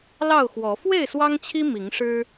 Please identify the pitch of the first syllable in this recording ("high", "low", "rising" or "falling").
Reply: falling